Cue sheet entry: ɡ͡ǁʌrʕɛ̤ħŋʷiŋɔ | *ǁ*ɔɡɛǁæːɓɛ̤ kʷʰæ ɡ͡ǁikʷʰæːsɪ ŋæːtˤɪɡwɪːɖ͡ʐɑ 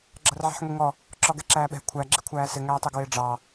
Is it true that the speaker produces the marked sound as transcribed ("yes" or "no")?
yes